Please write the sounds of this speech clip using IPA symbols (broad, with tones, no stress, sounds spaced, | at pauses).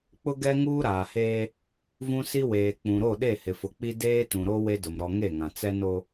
k͡p ʊ˦ ɡ ɛ˦ ŋ uː˦ ɾ aː˨ h eː˦ | v ũ˦ s i˦ w eː˨ k͡p ũ˨ ɾ o˦˨ ɗ e˦˨ h ɪ˨ f ʊ˨ k͡p i˦ d eː˦ t ũ˨ ɾ o˦ w e˦ d ʊ˨ m ɾ ɔ˨ ŋ e˦˨ ŋ ã˨ t͡s ɛ˦ n o˦